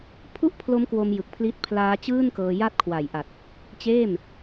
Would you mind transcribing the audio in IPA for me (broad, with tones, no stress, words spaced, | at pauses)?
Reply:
pʰu˥˩ʔpʰlo˦˥mkwo˧m jɯ˨˩k̚pʰli˦˥t̚ pʰlaː˦˥t͡ɕɯː˥˩nkɤː˧ ja˦˥t̚kʰwa˨˩jʔa˨˩t̚ | t͡ɕeː˥˩m